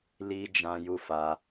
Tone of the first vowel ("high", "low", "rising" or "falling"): high